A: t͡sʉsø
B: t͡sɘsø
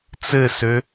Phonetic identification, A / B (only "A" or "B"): B